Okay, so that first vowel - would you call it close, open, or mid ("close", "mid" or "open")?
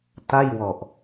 open